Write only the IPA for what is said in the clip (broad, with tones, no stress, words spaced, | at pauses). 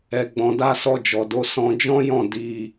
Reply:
ɛ˨ɡ͡bɔ̃˨ da˧sɔ˧d͡ʒɔ˨do˨˦ sɔ̃˧ d͡ʒɔ̃˦jɔ̃˦˨ di˧